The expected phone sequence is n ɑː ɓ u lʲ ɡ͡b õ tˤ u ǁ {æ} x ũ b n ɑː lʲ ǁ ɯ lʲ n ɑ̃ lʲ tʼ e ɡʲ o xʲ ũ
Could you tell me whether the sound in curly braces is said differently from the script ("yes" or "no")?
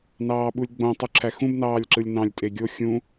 no